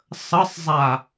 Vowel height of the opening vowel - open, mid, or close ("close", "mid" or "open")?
mid